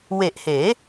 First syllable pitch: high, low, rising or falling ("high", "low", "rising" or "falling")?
low